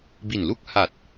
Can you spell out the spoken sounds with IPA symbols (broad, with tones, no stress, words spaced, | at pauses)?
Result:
bi˨˩nlu˥˩k̚ha˨˩t̚